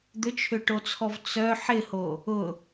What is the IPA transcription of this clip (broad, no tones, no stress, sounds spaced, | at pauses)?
d̪ ʏ t͡ʃʰ ʏ ʈ o t͡sʰ ɔ v t͡s œ ħ ɪ h o | ʊ